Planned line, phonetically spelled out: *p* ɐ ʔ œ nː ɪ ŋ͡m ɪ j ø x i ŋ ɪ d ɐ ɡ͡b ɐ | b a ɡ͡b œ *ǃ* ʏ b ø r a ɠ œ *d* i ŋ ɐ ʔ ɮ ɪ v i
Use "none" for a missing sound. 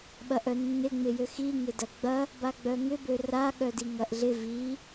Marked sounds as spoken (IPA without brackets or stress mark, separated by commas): ɓ, ŋ, d